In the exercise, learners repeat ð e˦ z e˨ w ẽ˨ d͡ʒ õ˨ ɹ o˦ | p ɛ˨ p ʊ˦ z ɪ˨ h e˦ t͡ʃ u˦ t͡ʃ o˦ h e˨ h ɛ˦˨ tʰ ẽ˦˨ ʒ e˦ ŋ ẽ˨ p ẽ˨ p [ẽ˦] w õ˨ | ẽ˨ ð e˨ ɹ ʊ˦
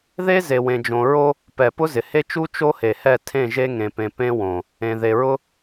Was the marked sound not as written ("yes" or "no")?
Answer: no